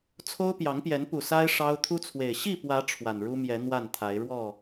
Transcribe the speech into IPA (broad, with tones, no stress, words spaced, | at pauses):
t͡sʰo˦ʊ̯pjɑ˨˦ŋpjɛ˨˦n pu˨˩sa˦ɪ̯ ʂɑ˦ʊ̯ t̪ʰu˦t͡sʰwe˨˩ɪ̯ ɕi˥˨pwä˨˦ ʈ͡ʂʰwa˨˩nɻu˦mjɛ˨˦ n̪wa˥˨nt̪ʰa˨˦ɪ̯ ɻwɔ˥˨